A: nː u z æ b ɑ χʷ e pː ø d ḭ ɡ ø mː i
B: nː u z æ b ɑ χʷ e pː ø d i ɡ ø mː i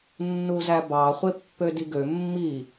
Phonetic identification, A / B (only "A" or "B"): B